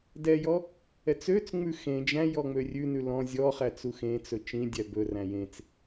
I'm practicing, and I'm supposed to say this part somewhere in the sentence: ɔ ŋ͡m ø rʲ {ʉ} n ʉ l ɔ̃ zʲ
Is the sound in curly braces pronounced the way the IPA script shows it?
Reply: yes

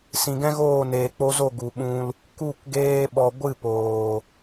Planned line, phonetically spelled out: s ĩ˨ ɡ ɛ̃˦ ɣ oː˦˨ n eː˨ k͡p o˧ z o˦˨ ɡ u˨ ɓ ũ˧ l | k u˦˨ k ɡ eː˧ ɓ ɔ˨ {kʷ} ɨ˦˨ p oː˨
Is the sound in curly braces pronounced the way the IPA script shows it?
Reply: no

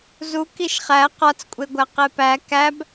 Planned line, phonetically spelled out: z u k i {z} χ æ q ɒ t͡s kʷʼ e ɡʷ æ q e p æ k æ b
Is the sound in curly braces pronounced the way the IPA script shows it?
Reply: no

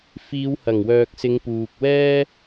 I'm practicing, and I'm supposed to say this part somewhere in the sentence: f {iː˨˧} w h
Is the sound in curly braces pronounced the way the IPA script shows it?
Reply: yes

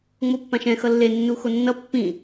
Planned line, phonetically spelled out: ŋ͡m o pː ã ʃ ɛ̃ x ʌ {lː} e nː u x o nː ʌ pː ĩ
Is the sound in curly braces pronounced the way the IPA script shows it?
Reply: yes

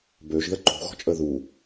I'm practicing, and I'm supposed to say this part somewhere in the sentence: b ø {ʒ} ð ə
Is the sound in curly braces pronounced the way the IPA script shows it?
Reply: yes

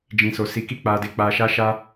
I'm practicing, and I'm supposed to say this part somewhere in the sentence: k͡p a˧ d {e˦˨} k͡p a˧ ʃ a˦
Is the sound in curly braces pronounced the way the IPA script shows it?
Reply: no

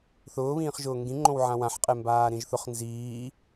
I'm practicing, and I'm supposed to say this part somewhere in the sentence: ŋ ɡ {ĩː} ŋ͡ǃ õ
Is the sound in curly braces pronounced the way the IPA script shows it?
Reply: no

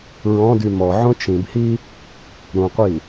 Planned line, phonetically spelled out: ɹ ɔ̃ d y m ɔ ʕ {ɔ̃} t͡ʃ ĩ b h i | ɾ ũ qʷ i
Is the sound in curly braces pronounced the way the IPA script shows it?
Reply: no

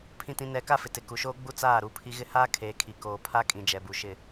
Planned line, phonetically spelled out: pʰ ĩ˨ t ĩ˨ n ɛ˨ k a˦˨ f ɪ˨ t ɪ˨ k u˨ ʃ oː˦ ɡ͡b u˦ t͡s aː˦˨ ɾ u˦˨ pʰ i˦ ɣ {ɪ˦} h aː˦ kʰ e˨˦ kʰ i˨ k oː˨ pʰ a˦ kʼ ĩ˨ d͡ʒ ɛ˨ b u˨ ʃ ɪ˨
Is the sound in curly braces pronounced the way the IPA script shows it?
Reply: yes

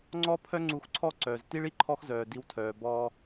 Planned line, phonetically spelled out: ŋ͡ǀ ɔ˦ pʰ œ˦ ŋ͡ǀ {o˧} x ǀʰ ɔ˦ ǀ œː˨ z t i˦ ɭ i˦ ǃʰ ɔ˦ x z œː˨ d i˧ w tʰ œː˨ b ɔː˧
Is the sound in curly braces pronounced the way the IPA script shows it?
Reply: no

